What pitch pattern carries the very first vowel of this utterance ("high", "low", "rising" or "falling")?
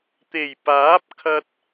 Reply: low